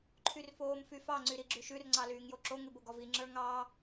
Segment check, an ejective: absent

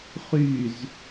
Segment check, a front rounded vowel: present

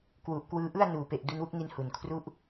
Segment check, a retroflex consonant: absent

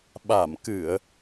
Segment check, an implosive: present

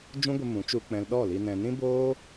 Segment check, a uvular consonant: absent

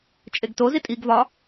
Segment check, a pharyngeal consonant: absent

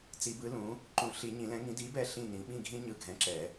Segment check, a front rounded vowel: absent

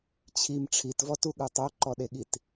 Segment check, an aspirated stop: present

